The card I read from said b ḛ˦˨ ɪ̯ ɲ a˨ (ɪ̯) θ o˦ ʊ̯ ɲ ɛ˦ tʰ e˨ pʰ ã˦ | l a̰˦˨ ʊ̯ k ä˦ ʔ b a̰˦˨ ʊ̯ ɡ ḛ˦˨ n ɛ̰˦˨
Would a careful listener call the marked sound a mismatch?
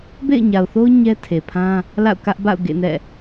yes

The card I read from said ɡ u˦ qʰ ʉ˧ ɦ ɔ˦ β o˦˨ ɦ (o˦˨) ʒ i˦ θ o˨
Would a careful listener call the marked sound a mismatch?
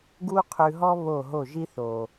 no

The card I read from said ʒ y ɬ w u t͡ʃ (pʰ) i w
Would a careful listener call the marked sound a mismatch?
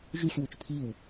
no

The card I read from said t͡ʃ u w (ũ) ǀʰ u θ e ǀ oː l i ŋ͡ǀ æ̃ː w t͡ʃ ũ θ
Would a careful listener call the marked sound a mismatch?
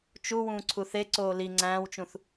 yes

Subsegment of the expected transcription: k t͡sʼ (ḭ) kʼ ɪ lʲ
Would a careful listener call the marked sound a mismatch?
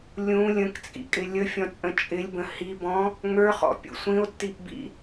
no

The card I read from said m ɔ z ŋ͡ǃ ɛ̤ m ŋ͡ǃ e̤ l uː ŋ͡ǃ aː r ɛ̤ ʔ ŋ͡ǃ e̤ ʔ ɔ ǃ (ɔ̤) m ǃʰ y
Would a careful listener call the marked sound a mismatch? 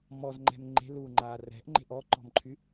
no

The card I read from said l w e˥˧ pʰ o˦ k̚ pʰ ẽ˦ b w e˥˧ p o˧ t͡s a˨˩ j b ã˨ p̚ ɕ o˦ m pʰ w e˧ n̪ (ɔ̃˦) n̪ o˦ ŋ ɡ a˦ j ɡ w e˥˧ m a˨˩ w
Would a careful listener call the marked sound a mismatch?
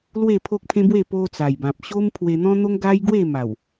no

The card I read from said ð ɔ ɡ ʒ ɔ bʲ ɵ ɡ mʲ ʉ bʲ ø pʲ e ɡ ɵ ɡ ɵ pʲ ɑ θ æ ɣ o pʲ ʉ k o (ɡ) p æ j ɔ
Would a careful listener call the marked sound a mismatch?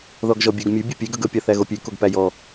no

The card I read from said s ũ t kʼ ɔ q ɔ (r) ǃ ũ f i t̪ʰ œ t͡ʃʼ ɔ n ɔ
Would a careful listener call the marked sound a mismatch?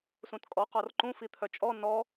no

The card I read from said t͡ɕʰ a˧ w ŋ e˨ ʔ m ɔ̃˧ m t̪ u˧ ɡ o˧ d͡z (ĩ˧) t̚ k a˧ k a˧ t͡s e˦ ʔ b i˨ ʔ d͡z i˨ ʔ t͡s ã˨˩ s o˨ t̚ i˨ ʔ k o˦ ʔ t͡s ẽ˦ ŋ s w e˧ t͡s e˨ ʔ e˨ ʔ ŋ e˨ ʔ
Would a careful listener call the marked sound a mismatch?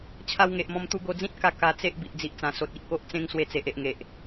yes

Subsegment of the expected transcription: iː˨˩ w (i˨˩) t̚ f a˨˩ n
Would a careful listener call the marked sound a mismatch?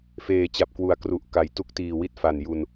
yes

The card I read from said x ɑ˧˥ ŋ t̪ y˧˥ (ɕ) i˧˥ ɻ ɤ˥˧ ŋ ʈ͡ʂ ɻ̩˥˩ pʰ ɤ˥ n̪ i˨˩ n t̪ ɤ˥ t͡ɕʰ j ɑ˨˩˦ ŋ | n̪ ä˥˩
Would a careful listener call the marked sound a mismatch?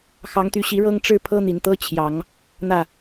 no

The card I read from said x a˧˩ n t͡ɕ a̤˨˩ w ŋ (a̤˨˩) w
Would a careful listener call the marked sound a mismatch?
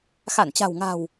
no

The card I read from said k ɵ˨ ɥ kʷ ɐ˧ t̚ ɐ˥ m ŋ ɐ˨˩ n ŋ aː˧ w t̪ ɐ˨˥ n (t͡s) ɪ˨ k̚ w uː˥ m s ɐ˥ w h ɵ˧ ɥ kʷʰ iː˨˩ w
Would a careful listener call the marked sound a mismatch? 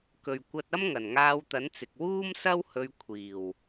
no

